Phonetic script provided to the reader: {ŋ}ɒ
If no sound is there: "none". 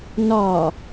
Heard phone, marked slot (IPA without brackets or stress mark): n